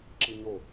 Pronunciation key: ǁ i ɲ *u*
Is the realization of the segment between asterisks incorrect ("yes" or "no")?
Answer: yes